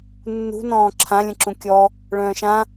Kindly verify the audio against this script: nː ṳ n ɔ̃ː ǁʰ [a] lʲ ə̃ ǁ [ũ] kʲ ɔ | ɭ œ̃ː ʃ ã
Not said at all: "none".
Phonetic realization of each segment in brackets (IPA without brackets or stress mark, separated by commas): ã, ũ